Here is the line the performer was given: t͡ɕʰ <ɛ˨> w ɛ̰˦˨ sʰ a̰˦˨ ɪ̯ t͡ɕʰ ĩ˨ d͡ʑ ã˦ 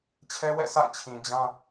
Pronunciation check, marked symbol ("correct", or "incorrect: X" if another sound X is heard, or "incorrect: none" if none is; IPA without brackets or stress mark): incorrect: ɛ˦